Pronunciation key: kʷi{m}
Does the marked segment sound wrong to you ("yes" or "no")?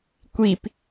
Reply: yes